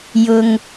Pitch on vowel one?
low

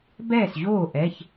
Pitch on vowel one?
falling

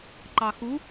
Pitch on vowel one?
low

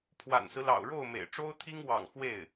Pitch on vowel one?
low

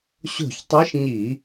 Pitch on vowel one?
falling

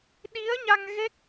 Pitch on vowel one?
rising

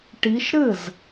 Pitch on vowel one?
rising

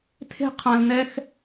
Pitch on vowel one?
high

